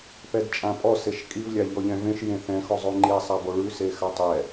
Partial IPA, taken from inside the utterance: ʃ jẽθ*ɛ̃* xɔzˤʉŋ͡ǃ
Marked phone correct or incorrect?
correct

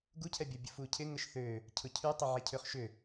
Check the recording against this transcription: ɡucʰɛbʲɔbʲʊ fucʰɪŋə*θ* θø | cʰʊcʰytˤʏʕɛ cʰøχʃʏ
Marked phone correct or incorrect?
incorrect: ʃ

